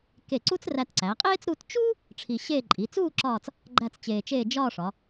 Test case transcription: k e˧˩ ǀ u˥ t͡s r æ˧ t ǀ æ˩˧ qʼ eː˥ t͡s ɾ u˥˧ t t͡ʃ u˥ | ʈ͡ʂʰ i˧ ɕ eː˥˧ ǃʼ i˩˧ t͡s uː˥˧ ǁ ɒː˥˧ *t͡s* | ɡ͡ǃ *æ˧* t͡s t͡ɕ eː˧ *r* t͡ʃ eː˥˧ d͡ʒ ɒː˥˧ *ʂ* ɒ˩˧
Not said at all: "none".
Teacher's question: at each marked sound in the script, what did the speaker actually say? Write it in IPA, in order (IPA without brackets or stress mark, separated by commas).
t͡s, æ˥˧, none, ʂ